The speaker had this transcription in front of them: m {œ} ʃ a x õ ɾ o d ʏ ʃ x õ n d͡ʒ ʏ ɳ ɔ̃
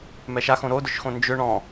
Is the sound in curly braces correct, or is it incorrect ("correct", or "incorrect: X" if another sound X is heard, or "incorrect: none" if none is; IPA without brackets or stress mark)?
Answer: incorrect: ɛ